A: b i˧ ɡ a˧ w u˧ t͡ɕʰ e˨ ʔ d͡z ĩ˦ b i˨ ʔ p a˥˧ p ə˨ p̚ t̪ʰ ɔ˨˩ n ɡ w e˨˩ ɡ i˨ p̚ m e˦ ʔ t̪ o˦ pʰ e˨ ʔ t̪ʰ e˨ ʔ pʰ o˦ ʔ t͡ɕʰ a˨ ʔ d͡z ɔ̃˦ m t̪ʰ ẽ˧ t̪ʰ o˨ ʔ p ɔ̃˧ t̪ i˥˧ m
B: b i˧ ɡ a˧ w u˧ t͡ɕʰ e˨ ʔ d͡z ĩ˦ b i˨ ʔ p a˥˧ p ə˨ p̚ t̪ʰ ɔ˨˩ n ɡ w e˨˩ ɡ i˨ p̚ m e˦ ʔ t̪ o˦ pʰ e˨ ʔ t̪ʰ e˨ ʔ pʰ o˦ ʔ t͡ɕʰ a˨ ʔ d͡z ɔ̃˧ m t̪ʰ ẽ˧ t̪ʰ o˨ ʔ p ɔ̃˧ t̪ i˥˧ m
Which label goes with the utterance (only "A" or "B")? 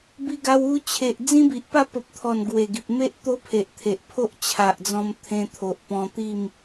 B